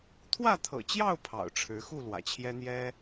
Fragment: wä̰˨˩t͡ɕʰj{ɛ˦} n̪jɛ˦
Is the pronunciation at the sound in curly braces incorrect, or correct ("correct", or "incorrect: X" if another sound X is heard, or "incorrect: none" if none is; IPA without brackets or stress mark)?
correct